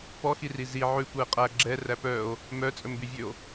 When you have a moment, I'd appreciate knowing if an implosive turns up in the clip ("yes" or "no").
no